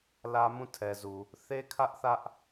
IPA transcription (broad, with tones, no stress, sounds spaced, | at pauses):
l ä˦ m ũ˦˨ tʰ ɛ˨ z u˨ | θ e˦ kʰ ä˦ ʔ θ ä˦ ʔ